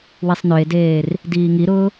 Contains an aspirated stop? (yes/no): no